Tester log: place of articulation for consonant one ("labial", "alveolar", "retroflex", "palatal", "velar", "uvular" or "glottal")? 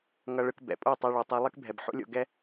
velar